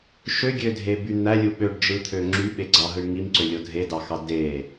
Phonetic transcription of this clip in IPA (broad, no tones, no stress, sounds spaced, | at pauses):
ʃ ø ɡʲ ø dʱ e b y n̪ æ lʲ u ɓ ø ɖ d͡ʒ ɯ t̪ʰ ø ŋ͡ǁ y ɓ e ɡ͡ǀ ɑ ɦ ɯ ɳ ŋ i m ǀ ø lʲ o dʱ e d ɑ x ɑ d e